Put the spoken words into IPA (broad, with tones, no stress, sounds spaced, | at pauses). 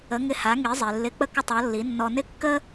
ə˩˥ ŋ ɪ˧ h a˩˥ ŋ i˩˥ zˤ i˩ lː ɪ˧ k͡p ə˥ k ə˥˩ tˤ ɔ˩˥ lː i˩˥ nː ɔ˧ n ɪ˥ kː ə˥